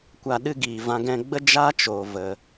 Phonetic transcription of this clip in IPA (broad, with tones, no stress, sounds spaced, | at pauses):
kʷ a˨ ɗ ɨ˧ ɡ iː˨ v ã˧ ɡ ɛ̃˧ ɡ͡b ə˦ d͡ʒ a˦ t͡ʃ oː˨ v ə˨